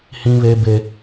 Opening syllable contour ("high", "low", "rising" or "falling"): high